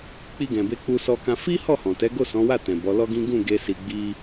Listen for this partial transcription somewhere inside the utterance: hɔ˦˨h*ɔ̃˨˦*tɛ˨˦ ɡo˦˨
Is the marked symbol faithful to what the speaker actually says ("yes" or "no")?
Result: no